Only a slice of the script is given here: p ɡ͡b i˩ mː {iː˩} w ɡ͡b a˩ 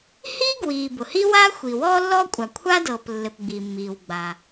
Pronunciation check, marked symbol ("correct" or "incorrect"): correct